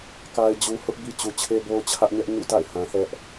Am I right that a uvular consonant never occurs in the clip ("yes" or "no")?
yes